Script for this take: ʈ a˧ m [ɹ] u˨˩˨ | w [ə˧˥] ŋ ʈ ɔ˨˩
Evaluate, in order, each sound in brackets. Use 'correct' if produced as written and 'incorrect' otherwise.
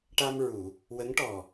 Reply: correct, correct

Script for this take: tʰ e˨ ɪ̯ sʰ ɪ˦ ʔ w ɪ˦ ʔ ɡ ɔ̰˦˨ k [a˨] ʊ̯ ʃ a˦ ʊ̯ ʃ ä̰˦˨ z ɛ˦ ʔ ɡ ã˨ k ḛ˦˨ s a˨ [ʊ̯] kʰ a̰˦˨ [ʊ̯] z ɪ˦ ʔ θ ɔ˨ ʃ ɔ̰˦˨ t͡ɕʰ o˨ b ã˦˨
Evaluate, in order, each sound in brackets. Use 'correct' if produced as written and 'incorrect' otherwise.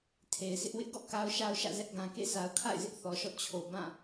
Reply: incorrect: a˦, correct, incorrect: ɪ̯

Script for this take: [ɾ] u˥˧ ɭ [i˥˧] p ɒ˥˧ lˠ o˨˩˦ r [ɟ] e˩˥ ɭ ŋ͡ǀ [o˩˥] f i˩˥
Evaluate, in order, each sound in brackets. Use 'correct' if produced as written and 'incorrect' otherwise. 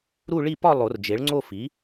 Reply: correct, correct, incorrect: d͡ʒ, incorrect: o˥˧

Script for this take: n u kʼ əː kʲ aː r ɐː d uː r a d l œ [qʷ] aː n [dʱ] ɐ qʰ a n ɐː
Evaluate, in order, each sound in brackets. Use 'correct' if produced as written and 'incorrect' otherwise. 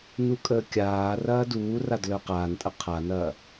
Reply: incorrect: q, incorrect: tʼ

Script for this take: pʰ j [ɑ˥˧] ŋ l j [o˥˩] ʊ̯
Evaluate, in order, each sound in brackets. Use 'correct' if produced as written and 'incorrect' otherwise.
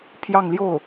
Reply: correct, correct

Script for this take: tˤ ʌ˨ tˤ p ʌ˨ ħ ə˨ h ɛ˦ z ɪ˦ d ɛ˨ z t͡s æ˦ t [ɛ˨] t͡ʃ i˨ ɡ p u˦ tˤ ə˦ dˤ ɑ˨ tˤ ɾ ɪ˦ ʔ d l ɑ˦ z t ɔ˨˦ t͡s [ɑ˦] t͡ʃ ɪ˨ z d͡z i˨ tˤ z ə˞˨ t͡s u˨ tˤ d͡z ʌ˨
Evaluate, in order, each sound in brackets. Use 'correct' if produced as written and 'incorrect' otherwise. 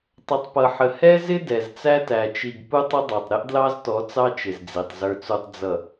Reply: incorrect: æ˨, correct

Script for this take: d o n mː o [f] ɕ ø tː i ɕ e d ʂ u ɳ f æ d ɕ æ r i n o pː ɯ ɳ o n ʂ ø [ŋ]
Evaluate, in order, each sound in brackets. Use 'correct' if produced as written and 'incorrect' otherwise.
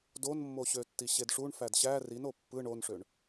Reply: incorrect: none, incorrect: ɳ

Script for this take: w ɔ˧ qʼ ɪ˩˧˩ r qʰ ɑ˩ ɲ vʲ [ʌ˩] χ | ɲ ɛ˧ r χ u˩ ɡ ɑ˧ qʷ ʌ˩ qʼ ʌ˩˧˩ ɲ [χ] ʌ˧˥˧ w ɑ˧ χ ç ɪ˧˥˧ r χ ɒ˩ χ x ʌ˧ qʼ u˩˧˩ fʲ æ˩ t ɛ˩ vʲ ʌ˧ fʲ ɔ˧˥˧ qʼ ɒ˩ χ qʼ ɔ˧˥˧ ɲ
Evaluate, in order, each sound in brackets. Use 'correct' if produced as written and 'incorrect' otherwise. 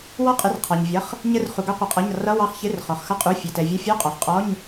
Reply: incorrect: ʌ˩˧˩, incorrect: r

